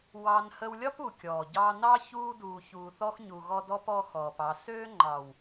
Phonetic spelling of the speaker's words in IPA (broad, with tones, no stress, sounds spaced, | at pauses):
w ɑ˧ n h ə˧ w lʲ ɒ˦ p u˨ kʲ ɔː˨ ɟ ɑ˧ n ɑ˦ ç uː˧ d uː˨ ç uː˨ θ ɔ˧ x ɲ u˨ ɣ ɔ˦ d ɔ˦ p ɔ˦ x ɔː˨ p ɑ˨ s øː˦ ŋ͡ǃ ɑ˨ w